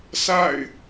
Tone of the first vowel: falling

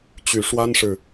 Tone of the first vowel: low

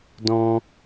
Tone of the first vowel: high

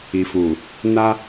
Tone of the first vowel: low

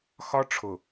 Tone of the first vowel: high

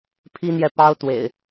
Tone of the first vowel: high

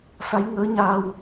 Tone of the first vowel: rising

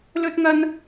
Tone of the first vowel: high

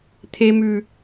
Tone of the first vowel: high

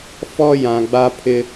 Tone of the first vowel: high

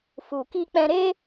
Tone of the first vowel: low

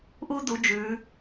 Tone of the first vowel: high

